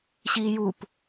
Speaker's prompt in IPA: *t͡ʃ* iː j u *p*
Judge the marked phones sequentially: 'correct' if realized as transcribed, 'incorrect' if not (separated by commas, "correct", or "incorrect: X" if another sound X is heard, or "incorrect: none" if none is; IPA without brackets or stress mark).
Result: incorrect: ɕ, correct